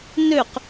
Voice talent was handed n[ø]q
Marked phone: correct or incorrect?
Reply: correct